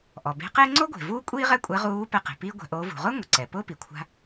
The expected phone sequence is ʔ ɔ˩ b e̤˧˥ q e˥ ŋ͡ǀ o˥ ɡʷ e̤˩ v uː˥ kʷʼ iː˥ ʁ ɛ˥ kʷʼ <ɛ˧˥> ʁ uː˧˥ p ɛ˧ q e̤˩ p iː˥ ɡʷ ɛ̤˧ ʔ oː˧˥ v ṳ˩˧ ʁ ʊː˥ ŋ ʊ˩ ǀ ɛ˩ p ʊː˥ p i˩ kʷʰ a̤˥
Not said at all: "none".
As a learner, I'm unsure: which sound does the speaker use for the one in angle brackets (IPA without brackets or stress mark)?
ɛ˧˥